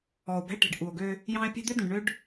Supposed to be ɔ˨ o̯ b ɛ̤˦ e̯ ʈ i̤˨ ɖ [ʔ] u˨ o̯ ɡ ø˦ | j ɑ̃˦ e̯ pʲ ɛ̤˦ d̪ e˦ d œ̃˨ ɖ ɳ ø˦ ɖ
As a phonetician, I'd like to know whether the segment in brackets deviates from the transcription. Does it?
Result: no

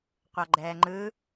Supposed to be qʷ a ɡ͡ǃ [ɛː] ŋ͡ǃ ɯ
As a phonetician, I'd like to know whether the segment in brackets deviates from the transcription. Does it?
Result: no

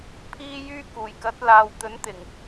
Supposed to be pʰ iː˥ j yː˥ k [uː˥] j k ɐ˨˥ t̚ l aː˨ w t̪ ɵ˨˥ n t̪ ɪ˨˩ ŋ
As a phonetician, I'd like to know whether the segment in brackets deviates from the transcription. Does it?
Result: yes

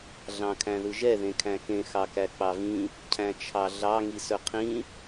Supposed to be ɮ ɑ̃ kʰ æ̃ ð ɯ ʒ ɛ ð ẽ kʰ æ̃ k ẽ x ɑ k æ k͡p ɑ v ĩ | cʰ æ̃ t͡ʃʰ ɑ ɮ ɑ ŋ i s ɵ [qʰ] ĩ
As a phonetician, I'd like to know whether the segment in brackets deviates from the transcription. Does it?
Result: no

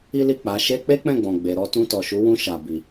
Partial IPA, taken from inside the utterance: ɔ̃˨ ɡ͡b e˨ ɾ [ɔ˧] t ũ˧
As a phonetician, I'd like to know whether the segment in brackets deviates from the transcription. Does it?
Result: no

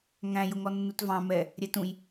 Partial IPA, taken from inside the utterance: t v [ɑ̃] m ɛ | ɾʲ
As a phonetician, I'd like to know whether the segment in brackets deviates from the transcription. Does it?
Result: no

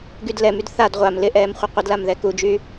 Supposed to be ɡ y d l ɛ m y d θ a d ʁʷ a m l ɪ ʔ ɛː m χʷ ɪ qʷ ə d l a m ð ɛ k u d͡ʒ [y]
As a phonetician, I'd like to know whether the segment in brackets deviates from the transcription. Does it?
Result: no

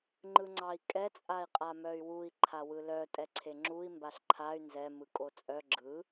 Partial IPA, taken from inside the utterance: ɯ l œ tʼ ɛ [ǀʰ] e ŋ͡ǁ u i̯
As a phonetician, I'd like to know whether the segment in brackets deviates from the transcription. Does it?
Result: no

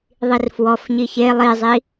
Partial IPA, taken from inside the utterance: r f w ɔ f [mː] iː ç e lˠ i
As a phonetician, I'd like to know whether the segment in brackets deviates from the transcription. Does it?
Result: yes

